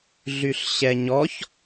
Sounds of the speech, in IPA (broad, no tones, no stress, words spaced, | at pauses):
ɮyɬɕɛɲɔç